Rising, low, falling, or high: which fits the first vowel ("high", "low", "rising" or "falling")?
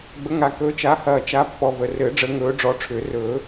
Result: rising